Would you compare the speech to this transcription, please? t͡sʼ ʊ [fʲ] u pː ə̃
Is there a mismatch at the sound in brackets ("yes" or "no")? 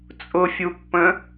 no